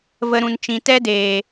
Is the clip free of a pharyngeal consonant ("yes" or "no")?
yes